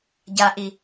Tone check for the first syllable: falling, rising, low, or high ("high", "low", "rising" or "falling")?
low